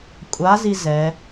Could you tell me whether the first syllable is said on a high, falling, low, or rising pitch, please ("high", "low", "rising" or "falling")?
rising